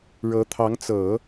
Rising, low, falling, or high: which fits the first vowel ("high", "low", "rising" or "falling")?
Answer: rising